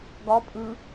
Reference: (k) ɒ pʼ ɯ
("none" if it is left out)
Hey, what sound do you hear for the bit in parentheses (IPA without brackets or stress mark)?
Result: ɡ